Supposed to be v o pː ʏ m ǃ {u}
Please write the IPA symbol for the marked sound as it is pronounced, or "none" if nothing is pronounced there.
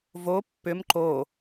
o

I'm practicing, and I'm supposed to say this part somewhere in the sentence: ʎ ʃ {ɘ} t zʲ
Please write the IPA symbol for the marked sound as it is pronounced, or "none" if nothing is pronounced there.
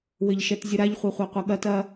ɛ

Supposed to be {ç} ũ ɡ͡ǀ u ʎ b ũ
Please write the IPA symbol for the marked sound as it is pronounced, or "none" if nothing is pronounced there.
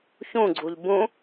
ç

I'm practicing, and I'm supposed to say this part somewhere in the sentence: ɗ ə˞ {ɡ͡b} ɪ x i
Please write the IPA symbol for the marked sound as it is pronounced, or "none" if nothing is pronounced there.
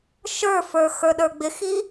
ɡ͡b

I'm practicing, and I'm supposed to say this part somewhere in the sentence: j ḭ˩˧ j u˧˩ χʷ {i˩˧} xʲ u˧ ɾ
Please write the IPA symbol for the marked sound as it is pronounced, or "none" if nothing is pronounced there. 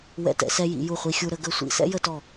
i˧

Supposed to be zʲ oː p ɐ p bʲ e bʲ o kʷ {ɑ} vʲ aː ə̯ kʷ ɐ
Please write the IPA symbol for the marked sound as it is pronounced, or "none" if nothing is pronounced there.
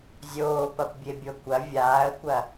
ɐ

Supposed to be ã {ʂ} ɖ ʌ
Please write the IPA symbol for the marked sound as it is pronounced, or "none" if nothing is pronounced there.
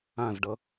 z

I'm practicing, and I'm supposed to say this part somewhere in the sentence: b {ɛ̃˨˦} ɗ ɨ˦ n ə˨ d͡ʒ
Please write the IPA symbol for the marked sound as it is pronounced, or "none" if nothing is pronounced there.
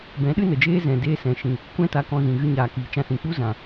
ɛ̃˨˦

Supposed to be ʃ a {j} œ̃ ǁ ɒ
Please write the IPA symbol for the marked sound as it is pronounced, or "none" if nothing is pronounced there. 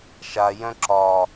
j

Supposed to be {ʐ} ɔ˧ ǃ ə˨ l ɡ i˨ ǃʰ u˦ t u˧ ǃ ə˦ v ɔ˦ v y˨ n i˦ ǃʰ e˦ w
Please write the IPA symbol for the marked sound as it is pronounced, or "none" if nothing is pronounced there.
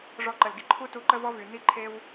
ʐ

